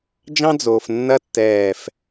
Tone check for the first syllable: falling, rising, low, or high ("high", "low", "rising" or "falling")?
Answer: high